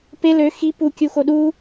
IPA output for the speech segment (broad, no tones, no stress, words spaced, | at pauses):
pe lø xi pukʲuxo ɗu